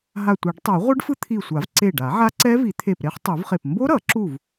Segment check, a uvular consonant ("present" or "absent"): present